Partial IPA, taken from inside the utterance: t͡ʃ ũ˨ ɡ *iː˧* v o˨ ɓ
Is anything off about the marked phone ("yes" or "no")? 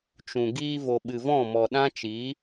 no